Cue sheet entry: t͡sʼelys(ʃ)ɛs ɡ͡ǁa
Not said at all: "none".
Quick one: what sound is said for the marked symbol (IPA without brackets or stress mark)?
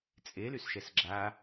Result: ʃ